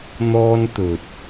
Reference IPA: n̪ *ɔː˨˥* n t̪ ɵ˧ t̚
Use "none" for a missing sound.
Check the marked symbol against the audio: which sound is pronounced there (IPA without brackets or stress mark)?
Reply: ɔː˥